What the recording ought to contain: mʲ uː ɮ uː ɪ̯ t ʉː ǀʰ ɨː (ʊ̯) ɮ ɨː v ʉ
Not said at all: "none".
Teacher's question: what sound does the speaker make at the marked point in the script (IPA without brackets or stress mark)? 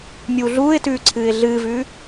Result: ɪ̯